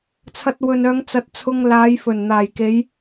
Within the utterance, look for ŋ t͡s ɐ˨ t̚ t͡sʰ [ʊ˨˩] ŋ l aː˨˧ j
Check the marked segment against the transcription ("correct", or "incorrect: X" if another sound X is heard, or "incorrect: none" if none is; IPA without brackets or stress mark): incorrect: ʊ˧